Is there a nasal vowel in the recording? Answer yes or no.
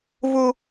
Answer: no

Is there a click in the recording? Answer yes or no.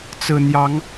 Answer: no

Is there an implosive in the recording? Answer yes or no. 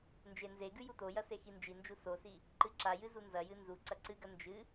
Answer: no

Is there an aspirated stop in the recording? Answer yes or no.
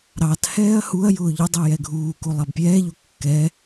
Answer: no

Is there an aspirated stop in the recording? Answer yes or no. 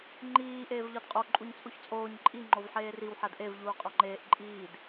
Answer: no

